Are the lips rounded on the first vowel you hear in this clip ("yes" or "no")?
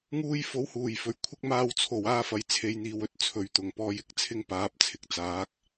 yes